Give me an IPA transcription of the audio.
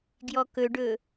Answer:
ɡ j ɔ k ɵ ɖ ɵ

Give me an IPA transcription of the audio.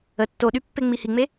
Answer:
ə tː o ɗ y pː e ŋ͡m i h i ŋ͡m e

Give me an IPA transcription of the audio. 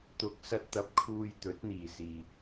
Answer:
t̪ ʊ˨ k̚ s ɐ˧ t̚ t̪ ɐ˨˥ p̚ kʰ uː˧ j t̪ ɵ˨˥ t̚ n̪ iː˨ s iː˨

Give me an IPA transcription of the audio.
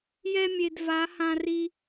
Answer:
j ɛ˧ mʲ e˩ d v a˩˧ h ã˩ r i˩

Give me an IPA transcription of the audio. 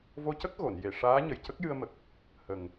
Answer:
v o˧ c ə˦˥ k̚ ɣ o˨˩˨ n j e˨˩˨ ʂ aː˧˥ ɲ ə˨˩ j c ə˦˥ k̚ j ɨ˧ ə̯ m ə˨˩ k̚ | h ə˨˩ ŋ

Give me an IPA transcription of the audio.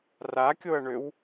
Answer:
r a kʲ o ɐ̯ ɳ ø w

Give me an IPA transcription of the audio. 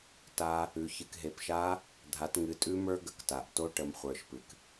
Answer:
t a˦˥ | ʉ˩˧ ç ɨ˩˧ k ɦ e˩˧˩ p ʃ a˦˥ | dʱ a˩˧ t ŋ ɨ˩˧ tʼ ʉ˦˥ m ə˞˦˥ ɡ ə˩ k t a˩ ʔ t o˦˥ ʈ ə˩˧ m χʷ ə˞˩ ʃ p ɨ˩ k

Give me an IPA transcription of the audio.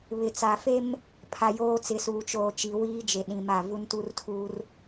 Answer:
β ɪ˨ t͡s a˨ f e˦ m | pʰ a˨ j oː˦ t͡s ɪ˨˦ s uː˨ t͡ʃ oː˨ t͡ʃ i˨ w iː˦ d͡ʒ e˨ ɗ ĩ˨ m a˦˨ v u˦ n t u˦ r tʰ uː˦ r

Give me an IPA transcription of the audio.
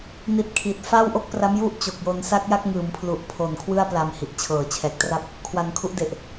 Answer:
n i˨˩ t̚ kʰ i˨˩ t̚ f a˥˩ w ʔ o˦˥ k̚ p r a˦˥ m j u˥˩ ʔ t͡ɕ o˨˩ k̚ j o˧ n s a˥˩ k̚ j a˥˩ k̚ ŋ ɯː˩˦ m pʰ l u˨˩ ʔ pʰ o˨˩ n kʰ w ɯ˥˩ a̯ p l a˧ m h i˨˩ ʔ t͡ɕʰ ɤː˨˩ t͡ɕʰ ɛː˨˩ k̚ t r a˥˩ p̚ | kʰ w a˧ n kʰ u˦˥ ʔ d e˨˩ ʔ

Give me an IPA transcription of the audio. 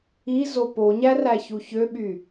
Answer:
i z o p o ɲ æ r æ ç u ç ø ɓ y

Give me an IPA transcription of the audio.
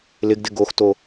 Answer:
l ɪ ɡ d ɪ ɡ o x t o

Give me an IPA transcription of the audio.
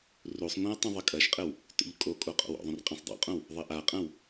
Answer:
r u sˤ ŋʷ ã e̯ tˤ ũ ðˤ ɘ kʼ ɐ ʃ qʼ ɘ w | t o̰ ʎ kʼ o kʼ o qʼ o̰ w o̰ ðˤ ũ r qʼ ẽ sˤ dˤ o̰ qʼ õ w | ðˤ ɘ ʔ a qʼ ɐ̃ w

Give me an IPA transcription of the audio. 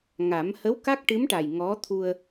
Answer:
ŋ a˨˩˦ m h ə˧˥ w k a˦˥ k̚ ʈ ɨ˧˥ m ʈ a˨˩ j ŋ ɔ˧˥ t̪ʰ u˧ ə̯

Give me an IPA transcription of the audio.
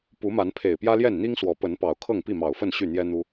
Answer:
p u˨˦ m a˨˦ n pʰ e˨˩ ɪ̯ p j ä˦ l j ɛ˥˨ n n̪ i˦ ŋ s w ɔ˨˦ p ə˨˦ n p ɑ˨˩ ʊ̯ kʰ ɤ˥˨ ŋ p i˥˨ m ɑ˨˩ ʊ̯ f ə˥˨ n ɕ y˥˨ n̪ j ɛ˦ n̪ u˦

